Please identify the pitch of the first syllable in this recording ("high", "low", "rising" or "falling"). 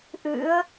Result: rising